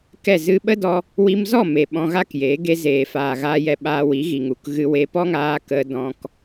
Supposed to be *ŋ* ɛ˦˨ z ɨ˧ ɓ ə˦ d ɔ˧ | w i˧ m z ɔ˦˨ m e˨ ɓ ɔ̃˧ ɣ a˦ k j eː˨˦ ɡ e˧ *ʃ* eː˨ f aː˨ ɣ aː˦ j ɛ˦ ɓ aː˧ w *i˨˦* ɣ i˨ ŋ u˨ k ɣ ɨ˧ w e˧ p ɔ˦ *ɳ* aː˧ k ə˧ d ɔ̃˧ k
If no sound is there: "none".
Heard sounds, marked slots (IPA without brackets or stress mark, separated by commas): k, z, i˨˦, ŋ